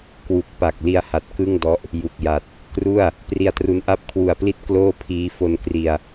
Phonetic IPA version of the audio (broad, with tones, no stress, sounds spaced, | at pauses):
k w u˨˩ k̚ p a˨˩ k̚ l i˧ a̯ h a˨˩ t̚ k ɯ˥˩ ŋ d ɔ˦˥ ʔ | j u˨˩ k̚ j a˨˩ t̚ | k r u˥˩ a̯ | p r i˧ a̯ t r u˦˥ n ʔ a˦˥ p̚ kʰ w u˨˩ a̯ p l i˦˥ t̚ k l oː˥˩ pʰ iː˦˥ f o˧ n k r i˧ a̯